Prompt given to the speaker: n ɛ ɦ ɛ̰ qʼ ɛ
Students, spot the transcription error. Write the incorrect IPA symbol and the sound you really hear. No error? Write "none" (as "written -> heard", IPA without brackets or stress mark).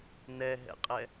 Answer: none